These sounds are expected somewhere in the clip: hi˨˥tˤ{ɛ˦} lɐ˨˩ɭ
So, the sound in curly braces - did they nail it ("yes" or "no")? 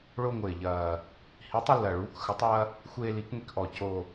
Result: no